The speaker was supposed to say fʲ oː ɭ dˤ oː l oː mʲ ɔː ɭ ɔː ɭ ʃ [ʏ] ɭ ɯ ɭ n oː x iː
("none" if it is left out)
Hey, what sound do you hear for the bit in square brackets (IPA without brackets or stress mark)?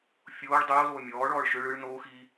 ʏ